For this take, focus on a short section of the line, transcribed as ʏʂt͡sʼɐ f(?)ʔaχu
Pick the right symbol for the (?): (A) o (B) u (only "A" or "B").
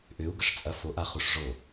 A